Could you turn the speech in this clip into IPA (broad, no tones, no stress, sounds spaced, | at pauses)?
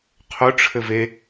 qʰ ʊ ʈ͡ʂʰ ɘ v e